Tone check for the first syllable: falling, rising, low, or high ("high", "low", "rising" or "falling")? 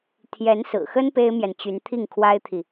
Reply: rising